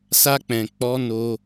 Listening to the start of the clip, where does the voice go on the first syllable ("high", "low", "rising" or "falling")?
high